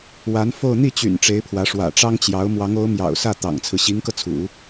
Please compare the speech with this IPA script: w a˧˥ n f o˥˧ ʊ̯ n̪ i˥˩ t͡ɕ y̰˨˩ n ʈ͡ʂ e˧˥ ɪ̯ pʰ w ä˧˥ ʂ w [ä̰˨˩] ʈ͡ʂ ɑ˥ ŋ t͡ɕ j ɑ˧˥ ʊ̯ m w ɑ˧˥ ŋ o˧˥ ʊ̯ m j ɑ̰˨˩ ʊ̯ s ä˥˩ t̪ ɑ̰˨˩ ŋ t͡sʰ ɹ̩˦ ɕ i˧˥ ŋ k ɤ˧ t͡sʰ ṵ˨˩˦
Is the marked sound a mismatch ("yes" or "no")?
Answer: no